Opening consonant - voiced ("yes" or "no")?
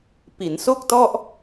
no